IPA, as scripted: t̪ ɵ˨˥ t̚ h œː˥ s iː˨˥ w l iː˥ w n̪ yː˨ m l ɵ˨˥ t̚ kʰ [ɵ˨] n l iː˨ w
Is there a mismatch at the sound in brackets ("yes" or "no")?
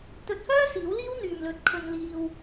no